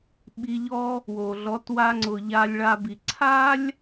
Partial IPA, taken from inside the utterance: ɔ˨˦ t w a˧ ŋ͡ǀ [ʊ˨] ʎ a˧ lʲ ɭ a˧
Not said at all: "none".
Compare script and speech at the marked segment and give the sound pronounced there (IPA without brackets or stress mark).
ʊ˨